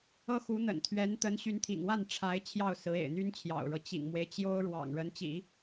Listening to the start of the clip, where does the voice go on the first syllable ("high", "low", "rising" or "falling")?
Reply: high